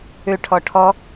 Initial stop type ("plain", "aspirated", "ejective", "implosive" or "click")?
aspirated